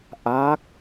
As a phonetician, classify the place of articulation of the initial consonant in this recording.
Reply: glottal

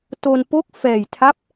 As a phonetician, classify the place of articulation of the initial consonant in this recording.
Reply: alveolar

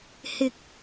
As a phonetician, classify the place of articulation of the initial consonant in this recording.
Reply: glottal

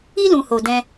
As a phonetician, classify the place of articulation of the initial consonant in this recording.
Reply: alveolar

